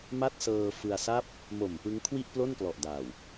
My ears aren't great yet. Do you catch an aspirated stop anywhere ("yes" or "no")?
yes